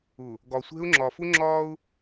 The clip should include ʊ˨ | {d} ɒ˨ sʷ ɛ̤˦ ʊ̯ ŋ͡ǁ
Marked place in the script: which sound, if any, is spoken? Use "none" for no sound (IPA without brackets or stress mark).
ɡ